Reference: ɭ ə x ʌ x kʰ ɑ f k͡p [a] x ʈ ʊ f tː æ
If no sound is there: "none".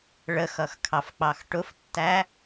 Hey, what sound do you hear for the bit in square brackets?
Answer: ɑ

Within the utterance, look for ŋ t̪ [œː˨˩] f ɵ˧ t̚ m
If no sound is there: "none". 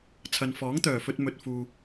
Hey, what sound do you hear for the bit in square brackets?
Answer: œː˨˩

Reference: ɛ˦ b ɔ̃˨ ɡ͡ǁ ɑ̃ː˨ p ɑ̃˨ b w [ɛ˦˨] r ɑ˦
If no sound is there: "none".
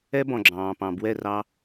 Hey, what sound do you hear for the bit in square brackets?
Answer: ɛ˦˨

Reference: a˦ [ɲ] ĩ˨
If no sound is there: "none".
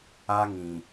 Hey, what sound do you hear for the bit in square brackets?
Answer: ŋ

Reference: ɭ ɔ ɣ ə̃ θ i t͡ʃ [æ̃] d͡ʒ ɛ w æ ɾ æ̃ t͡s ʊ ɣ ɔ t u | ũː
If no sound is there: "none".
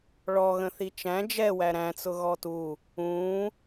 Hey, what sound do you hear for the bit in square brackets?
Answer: æ̃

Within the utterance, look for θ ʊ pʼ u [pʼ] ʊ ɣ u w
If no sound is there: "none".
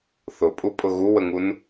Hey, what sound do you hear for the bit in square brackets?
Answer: pʼ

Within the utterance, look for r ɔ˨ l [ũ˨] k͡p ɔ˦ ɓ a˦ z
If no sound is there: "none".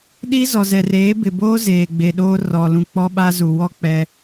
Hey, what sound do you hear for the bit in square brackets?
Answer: ũ˨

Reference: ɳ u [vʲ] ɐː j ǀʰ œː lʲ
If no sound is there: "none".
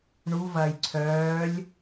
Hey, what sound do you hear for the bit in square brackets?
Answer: v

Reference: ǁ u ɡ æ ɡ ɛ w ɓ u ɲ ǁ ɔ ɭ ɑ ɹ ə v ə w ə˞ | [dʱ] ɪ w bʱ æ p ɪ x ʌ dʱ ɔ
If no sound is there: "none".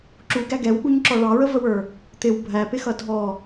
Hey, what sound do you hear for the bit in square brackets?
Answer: t̪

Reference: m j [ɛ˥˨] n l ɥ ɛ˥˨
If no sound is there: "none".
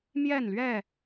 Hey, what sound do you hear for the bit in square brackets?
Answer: ɛ˥˨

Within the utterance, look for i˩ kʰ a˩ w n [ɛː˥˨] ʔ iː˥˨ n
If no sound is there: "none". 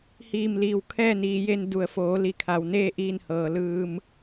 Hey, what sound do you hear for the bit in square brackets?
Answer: eː˥˨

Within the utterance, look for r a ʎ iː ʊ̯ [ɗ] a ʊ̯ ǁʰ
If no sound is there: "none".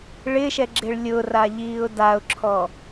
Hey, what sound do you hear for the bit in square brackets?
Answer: d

